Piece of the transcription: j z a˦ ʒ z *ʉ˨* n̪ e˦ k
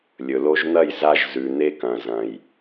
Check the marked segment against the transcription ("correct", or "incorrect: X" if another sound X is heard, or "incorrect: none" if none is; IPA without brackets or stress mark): correct